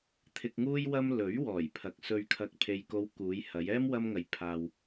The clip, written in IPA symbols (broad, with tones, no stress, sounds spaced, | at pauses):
t̪ʰ ɪ˨ k̚ ŋ uː˧ j w ɐ˧ m l ɵ˨˥ ɥ w ɔː˨˩ j pʰ ɐ˨ k̚ s ɵ˨ ɥ kʰ ɐ˨ k̚ pʰ e˨ j k o˨˧ w k uː˨˧ j h ɐ˨˧ j ɛː˥ m w ɐ˧ m ŋ ɐ˨ j pʰ aː˨ w